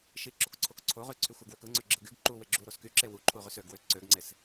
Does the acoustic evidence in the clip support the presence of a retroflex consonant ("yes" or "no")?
no